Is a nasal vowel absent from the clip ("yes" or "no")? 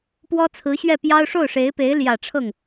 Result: yes